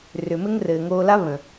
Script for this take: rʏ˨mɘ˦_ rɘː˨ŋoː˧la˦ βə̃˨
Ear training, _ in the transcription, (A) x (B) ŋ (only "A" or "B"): B